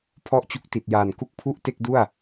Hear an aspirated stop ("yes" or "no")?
yes